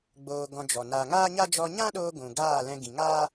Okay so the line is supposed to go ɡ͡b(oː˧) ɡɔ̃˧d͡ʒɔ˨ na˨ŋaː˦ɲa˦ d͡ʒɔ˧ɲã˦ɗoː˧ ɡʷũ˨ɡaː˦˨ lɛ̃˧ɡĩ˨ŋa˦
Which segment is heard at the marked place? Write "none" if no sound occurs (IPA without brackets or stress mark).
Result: oː˧